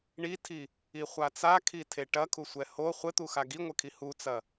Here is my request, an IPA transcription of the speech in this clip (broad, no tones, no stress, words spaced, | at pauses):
ɳitʰi | iχʷat͡sakʰi tʰeʈɐkʰusʷɛ ho χʷɘt̪uxa ɡiŋʷɘkʰi hut͡sɐ